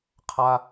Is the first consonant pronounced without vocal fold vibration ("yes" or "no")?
yes